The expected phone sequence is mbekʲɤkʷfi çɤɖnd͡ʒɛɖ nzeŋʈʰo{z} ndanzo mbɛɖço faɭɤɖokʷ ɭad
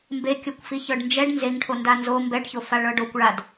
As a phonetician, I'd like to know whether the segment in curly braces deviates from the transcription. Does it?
yes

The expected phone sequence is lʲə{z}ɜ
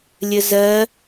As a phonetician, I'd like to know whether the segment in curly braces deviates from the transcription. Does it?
no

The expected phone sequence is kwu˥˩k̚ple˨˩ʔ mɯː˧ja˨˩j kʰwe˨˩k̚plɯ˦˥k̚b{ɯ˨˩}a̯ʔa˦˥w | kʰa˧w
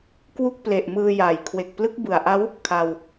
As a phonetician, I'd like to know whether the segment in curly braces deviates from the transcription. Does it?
no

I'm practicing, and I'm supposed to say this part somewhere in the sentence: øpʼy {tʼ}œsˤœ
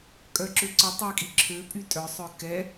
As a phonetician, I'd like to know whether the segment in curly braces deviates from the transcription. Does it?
no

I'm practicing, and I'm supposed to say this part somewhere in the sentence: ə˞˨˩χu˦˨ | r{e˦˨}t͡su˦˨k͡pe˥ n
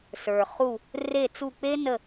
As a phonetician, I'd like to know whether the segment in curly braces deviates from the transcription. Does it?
no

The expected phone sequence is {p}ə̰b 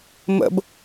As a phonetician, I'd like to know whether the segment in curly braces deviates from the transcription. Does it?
yes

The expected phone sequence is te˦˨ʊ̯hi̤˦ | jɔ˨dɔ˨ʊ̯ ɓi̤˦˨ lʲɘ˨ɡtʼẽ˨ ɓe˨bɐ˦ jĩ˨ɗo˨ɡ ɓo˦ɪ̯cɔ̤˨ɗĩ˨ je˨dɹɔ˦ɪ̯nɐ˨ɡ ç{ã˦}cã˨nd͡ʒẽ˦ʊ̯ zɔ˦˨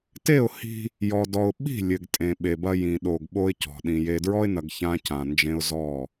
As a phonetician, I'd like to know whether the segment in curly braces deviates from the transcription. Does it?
no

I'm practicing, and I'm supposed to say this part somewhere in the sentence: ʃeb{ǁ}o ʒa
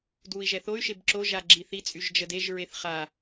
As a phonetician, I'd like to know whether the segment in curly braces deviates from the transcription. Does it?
no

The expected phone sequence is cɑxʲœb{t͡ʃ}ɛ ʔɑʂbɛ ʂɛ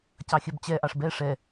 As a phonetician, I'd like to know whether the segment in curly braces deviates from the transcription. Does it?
yes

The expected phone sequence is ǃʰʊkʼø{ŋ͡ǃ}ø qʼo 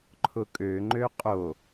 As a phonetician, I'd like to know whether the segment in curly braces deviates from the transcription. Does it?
no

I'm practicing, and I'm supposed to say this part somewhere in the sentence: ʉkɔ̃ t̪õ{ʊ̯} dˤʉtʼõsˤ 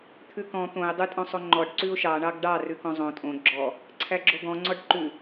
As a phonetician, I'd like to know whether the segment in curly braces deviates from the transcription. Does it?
yes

